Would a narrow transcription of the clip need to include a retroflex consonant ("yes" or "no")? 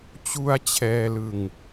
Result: no